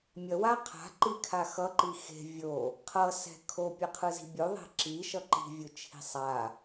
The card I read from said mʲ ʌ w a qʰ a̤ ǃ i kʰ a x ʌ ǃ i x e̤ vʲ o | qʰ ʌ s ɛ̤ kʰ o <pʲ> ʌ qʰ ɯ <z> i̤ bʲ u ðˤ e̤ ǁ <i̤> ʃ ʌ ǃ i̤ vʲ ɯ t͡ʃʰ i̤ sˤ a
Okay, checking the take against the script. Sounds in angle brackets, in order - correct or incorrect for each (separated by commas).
correct, correct, incorrect